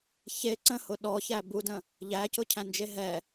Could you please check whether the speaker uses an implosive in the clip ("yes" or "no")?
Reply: yes